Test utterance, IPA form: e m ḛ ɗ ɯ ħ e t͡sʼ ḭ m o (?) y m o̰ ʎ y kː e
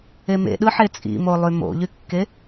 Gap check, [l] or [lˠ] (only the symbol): lˠ